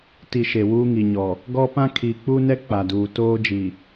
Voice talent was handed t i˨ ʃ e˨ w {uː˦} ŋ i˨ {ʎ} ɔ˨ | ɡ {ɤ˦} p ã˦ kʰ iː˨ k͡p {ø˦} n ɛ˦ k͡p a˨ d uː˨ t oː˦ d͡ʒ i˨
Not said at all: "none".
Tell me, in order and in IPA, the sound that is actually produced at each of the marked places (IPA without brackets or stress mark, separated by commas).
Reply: uː˦, ɲ, ɔ˦, u˦